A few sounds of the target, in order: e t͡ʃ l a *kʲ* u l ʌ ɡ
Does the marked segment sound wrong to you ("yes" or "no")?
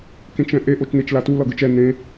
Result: yes